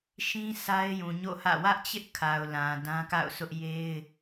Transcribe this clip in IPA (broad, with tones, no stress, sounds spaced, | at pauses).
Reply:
ʃ ĩ˦ s a˦ ɪ̯ j ũ˨ ɲ o̰˦˨ h ä̰˦˨ w ä˦ ʔ t͡ɕ ɪ˦ ʔ kʰ a˨ ʊ̯ l ã˨ d ã˦ k a̰˦˨ ʊ̯ s ʊ˦ ʔ j e˦ ɪ̯